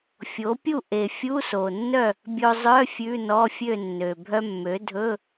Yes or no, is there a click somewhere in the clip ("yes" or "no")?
no